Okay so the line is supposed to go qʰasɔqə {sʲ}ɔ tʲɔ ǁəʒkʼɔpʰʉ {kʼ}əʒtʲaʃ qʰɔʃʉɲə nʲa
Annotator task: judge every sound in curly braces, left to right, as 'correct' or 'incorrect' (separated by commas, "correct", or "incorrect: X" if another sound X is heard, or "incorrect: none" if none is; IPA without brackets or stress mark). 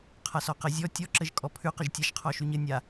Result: incorrect: zʲ, incorrect: q